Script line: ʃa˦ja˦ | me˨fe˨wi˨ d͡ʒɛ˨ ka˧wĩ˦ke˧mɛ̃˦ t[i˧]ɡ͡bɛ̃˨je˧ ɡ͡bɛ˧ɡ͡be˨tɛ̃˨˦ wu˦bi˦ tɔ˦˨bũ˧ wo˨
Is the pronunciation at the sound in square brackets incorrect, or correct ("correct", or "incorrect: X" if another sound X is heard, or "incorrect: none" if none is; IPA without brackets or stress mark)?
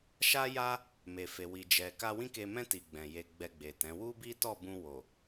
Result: correct